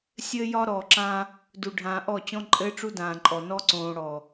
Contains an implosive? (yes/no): no